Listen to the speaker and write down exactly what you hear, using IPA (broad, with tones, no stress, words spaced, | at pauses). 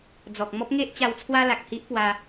d͡zɔ˨k̚mɔ˦p̚ŋe˦ʔt͡ɕa˧w t͡sʰwa˦la˨k̚hi˦ʔpwa˧